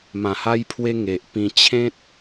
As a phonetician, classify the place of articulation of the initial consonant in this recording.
labial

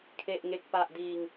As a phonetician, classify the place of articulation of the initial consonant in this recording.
velar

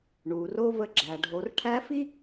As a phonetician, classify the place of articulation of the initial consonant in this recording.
retroflex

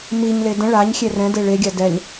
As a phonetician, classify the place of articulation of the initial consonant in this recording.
labial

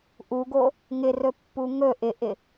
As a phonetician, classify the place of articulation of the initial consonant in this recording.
glottal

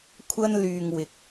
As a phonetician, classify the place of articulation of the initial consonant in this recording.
velar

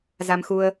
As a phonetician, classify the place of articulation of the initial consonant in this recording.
alveolar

